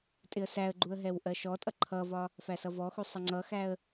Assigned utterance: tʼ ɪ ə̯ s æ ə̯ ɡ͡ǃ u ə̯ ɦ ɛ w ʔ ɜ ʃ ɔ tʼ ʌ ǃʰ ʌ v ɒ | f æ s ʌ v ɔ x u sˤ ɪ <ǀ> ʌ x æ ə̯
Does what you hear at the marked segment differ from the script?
yes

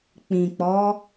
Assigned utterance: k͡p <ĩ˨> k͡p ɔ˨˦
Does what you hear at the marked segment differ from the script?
no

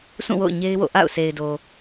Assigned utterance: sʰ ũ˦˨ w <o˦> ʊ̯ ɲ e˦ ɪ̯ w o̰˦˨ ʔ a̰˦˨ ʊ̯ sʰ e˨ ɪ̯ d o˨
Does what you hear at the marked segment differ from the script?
yes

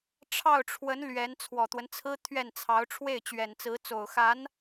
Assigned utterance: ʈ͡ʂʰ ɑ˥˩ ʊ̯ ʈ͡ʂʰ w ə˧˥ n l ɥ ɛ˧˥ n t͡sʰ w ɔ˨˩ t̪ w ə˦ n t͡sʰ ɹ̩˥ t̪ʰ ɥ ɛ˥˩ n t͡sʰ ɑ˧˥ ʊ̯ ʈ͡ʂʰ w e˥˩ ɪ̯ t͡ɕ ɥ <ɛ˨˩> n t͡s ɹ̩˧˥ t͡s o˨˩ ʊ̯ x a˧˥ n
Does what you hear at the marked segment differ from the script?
no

